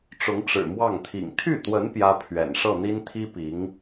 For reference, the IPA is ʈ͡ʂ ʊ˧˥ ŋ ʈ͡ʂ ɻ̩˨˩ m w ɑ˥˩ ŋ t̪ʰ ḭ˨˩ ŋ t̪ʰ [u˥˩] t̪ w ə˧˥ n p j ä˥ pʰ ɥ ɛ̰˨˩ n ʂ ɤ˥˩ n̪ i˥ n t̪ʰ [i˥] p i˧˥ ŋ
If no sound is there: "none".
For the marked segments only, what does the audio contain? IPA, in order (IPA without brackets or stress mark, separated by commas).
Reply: y˥˩, i˥